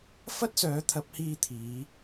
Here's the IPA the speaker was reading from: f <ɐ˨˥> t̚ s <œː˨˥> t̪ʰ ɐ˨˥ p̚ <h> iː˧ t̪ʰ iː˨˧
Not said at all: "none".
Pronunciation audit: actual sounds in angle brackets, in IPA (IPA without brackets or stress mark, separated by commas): ɐ˥, œː˨˥, h